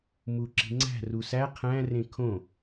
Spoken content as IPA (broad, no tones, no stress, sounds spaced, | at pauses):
m u ǁ i̤ ŋ͡ǀ æ̤ r u s æ qʰ æ̃ r ẽ kʰ õ